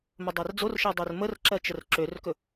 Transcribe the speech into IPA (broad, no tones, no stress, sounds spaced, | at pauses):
m ɵ dˤ ɜ r d͡z o r ʃ ɜ dˤ ø r m ə r ǁ ɜ t͡ʃ ə r ǁ ø r k ɵ